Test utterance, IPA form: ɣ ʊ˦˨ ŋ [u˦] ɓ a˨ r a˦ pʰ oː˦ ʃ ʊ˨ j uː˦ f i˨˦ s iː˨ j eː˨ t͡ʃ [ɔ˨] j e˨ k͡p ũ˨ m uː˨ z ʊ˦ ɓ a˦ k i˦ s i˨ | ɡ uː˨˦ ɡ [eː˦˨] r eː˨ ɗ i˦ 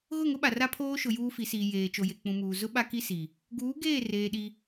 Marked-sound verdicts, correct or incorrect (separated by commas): incorrect, incorrect, correct